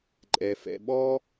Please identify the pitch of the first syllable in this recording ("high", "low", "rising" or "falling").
low